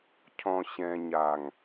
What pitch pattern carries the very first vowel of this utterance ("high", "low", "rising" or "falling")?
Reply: low